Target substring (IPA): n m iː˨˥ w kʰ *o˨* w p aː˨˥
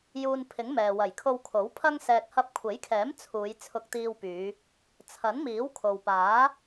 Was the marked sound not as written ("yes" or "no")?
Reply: no